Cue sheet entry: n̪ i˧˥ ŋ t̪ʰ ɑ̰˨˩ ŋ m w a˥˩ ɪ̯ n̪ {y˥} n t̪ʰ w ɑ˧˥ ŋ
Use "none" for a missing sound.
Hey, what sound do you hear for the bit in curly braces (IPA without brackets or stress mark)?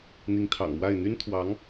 y˥